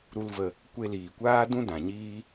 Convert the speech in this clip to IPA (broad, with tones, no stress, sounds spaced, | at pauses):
ɾ u˦ l v ə˧ | kʷ e˧ l iː˨ kʷ aː˦ d ũ˦ d ã˨ ɲ iː˦